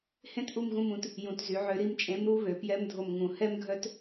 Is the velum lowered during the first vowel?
yes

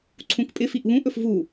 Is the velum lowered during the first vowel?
yes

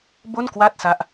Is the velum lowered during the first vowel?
no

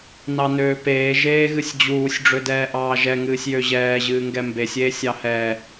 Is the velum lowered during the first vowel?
no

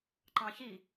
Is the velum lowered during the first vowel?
yes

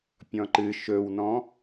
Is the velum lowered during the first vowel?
yes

